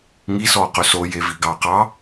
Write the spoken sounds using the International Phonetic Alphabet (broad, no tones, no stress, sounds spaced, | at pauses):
ŋ i s ɔ q ɵ s o j e v i ɡ ɑ q ɑ